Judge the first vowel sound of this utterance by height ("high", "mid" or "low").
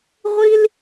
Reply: high